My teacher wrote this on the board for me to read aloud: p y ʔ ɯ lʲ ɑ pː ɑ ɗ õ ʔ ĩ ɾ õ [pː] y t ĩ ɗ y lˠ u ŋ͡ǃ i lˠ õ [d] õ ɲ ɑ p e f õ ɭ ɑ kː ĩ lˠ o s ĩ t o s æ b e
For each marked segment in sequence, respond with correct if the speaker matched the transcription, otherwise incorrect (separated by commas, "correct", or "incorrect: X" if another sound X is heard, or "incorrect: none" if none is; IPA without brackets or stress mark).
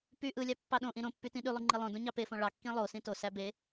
correct, correct